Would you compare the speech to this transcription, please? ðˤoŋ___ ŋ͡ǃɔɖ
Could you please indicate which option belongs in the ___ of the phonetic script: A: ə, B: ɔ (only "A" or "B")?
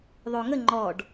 A